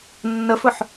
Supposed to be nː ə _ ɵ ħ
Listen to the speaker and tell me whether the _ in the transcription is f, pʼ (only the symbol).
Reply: f